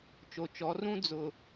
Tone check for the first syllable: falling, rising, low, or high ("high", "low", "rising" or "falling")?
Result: low